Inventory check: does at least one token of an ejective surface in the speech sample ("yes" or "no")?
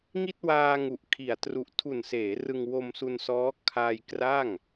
no